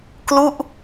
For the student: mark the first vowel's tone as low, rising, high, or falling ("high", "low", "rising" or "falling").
falling